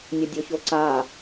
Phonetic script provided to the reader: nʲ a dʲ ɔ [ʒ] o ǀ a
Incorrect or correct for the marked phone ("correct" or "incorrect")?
incorrect